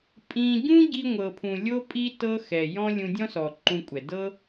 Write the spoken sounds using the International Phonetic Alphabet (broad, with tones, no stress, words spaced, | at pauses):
pʼĩ˧ ɟũ˦ɟi˧ŋʷɤ˨pʰũ˨ lʲo˦pʼi˦ tɤ˦ xɛ˨jɔ̃˦ lʲũ˧dʲɔ̃˦sɔ˨ ǃũ˧kʷʼɛ˨ dɤ˦